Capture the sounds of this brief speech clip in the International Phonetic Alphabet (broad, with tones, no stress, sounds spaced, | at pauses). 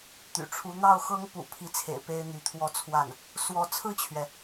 t̪ y̰˨˩ ʈ͡ʂʰ u˧˥ n̪ ɑ˥˩ ʊ̯ x ɤ˥ ŋ p ṵ˨˩ pʰ i˧˥ t͡sʰ ḛ˨˩ ɪ̯ p e˥ ɪ̯ n̪ y˧˥ t̪ʰ w ɔ˥˧ t͡sʰ w a˥˩ n | s w ɔ˧˥ t͡sʰ ɹ̩˥˩ t͡ɕʰ ɥ ɛ˩